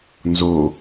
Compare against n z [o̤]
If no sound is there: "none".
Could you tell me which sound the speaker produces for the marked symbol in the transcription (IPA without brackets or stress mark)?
o